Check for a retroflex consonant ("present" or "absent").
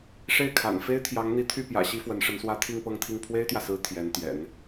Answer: present